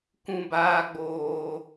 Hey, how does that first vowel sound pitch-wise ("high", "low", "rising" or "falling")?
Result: low